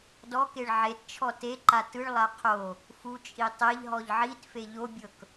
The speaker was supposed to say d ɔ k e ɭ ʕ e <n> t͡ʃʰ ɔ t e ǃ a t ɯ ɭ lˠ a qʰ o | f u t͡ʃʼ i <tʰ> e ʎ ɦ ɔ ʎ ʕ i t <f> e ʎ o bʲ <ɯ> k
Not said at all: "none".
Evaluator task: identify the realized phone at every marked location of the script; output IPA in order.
t, tˤ, f, ɤ

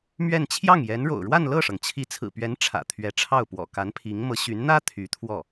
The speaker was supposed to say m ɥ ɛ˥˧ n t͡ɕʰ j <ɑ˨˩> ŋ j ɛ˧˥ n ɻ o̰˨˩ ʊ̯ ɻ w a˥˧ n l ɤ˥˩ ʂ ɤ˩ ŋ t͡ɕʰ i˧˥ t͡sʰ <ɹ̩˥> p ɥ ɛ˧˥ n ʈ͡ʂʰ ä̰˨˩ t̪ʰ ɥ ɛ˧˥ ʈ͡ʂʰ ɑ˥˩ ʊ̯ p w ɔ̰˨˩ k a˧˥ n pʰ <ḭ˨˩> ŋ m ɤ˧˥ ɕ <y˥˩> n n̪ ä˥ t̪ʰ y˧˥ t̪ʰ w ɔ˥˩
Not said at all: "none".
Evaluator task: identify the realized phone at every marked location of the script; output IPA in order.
ɑ˥˩, ɹ̩˨˩, i˧˥, y˧˥

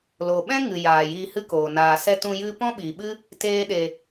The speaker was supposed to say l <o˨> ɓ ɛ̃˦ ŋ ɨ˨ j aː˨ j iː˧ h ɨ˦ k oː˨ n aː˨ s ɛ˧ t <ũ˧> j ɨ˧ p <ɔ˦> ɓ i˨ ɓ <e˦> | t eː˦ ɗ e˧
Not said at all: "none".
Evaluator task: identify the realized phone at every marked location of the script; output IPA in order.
o˨, ũ˧, ɔ̃˦, ɨ˦

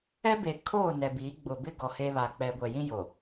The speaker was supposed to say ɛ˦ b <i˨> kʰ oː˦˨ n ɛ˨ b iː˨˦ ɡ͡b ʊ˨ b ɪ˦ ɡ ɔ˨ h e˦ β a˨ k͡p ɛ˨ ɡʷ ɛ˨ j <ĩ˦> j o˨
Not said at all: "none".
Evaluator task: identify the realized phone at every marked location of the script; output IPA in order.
e˨, ĩ˦

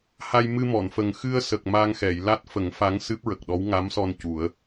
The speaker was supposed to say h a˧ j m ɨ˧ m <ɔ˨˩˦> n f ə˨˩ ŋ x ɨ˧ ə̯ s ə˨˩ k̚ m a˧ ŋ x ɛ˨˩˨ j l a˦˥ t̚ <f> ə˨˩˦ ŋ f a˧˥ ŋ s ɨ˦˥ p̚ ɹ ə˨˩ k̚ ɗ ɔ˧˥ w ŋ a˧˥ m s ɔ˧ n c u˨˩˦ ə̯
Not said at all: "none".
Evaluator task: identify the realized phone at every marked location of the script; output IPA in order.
ɔ˨˩˨, f

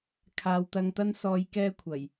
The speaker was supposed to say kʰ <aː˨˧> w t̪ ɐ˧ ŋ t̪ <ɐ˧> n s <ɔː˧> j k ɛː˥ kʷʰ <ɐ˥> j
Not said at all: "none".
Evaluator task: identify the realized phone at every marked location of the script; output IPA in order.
aː˨, ɐ˥, ɔː˧, ɐ˨˩

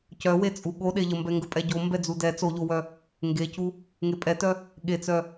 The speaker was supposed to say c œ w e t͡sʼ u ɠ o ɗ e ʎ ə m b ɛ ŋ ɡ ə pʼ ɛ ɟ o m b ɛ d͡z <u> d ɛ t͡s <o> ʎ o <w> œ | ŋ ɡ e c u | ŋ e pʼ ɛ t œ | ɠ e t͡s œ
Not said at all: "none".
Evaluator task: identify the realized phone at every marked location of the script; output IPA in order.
u, o, w

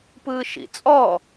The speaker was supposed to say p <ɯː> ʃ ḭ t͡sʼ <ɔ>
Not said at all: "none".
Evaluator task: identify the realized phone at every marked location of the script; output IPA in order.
ɯː, ɔ

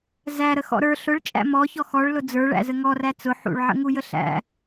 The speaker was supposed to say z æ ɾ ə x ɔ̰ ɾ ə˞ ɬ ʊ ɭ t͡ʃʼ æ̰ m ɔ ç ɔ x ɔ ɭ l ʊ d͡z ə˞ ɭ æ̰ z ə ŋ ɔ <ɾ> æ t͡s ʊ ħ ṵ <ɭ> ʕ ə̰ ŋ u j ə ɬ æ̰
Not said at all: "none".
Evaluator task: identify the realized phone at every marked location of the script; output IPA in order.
r, ɭ

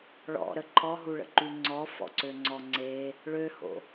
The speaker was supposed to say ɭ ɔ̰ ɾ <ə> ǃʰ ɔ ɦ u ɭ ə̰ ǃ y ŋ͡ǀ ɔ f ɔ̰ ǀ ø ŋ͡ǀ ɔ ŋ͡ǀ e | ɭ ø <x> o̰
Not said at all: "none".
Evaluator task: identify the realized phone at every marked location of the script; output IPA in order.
ə, h

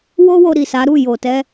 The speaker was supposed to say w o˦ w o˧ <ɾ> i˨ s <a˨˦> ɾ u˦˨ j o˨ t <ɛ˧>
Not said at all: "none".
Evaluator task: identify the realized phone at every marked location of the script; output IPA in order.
ɾ, a˨˦, ɛ˧

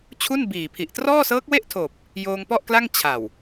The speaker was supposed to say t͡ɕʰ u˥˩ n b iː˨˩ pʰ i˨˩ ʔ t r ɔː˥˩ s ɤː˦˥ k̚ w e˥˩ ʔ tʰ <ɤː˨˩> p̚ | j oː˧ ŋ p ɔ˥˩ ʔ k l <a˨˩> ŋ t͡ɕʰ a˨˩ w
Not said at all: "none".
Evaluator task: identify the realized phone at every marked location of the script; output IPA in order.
oː˨˩, a˥˩

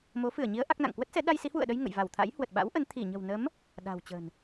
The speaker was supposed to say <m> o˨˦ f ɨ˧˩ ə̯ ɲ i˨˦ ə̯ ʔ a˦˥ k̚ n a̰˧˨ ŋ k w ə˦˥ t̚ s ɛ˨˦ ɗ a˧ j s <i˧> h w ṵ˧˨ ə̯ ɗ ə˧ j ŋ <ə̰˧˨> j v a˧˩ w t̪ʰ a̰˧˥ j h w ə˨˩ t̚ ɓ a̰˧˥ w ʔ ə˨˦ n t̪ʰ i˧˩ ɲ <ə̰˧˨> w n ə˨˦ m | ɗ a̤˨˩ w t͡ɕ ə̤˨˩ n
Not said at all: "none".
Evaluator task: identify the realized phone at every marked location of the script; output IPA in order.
m, i˨˦, ə̰˧˨, ə̤˨˩

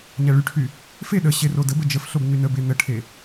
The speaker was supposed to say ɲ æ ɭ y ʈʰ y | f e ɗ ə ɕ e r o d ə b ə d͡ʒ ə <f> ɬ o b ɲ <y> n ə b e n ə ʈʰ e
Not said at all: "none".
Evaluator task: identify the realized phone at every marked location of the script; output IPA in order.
f, y

